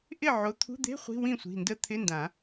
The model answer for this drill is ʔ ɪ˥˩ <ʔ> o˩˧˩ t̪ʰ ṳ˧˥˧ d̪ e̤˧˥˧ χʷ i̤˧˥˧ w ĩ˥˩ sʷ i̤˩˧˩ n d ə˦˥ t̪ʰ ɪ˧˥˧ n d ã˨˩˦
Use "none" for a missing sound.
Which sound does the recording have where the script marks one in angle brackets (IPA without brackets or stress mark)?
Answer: ʕ